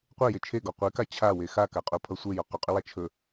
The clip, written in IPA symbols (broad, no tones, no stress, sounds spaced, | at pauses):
qʷ e j e t͡ʃʰ e ɡ ɔ qʷ e k a t͡ɕʰ a w e x a k a qʼ o pʰ ʌ sʷ e j ɔ q ʏ qʼ ʏ w a t͡ʃʰ ɵ